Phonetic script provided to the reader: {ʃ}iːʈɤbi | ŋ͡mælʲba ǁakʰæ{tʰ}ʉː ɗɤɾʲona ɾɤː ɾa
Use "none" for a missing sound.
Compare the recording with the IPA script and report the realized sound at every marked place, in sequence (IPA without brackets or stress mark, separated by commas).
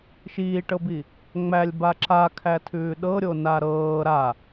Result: ʃ, tʰ